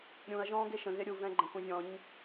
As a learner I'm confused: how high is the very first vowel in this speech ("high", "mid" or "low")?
high